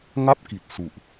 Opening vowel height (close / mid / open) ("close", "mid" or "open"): open